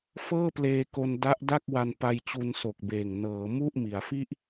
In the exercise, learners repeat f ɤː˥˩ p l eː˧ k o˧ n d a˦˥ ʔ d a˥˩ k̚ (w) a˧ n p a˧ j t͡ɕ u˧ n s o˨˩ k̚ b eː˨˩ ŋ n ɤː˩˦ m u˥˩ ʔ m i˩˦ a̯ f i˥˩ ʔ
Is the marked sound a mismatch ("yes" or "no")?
no